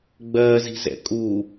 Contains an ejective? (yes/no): yes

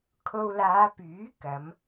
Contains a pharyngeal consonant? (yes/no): no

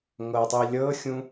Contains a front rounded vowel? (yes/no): no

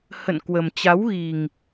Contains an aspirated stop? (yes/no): no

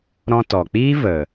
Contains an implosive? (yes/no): no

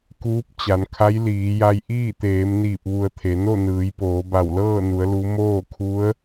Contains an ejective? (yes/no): no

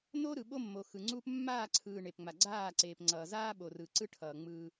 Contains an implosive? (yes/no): yes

